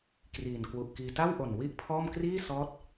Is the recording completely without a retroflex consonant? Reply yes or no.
yes